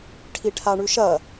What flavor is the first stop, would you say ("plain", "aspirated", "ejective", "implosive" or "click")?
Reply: aspirated